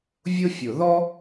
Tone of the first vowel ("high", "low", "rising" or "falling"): high